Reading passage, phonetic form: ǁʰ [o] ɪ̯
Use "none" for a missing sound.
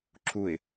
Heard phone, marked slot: u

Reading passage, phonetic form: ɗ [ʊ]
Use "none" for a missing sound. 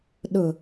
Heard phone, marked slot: ʊ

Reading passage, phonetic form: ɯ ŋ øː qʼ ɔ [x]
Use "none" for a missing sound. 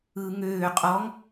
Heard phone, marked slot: ŋ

